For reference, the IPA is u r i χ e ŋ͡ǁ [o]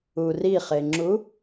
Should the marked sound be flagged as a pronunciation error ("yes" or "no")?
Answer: yes